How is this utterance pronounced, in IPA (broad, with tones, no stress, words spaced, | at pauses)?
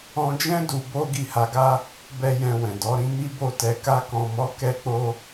ɔ̃˧d͡ʒɛ̃˦ du˧ bo˦ ɡi˦˨ha˧ɡa˦ | bɛ˦jɛ̃˧ wɛ̃˨dɔ˨˦ɾĩ˦ mi˦bo˦˨tɛ˧ ka˧kɔ̃˨mɔ˨˦ kɛ˦k͡po˦